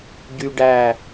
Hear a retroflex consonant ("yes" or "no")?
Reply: yes